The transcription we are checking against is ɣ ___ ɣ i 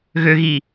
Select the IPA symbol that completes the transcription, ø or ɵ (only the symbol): ø